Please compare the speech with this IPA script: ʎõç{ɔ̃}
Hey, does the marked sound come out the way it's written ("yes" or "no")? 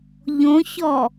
no